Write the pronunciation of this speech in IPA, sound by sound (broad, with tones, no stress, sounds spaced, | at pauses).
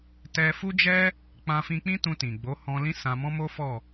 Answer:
t ɛ˧ f u˦ d͡ʒ ɛ˦ | k͡p ã˧ f ĩ˧ k͡p ĩ˦ t ũ˧ t ĩ˨ ɡ͡b o˨˦ h ɔ̃˧ l ĩ˦ s ã˧ m ɔ̃˦ m o˦ f ɔ˦˨